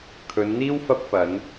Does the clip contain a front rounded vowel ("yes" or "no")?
no